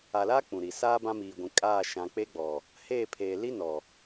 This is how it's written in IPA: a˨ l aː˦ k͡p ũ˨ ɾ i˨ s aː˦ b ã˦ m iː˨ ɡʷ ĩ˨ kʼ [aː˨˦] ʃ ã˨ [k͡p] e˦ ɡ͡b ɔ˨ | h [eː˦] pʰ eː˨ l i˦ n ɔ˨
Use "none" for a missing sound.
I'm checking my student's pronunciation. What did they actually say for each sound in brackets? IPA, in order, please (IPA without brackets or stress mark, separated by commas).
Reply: aː˦˨, k͡p, eː˦˨